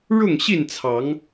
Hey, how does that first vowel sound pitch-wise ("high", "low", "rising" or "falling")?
falling